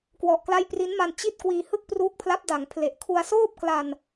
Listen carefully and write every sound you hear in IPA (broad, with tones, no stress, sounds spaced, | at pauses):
k w ɔ˨˩ ʔ k l a˦˥ j p r i˦˥ n m a˧ n t͡ɕ i˦˥ t̚ k w iː˧ h ɯ˥˩ k̚ p r uː˦˥ k̚ pʰ l a˦˥ p̚ d a˩˦ ŋ pʰ l e˨˩ ʔ kʰ u˧ a̯ s oː˥˩ p̚ k l a˧ n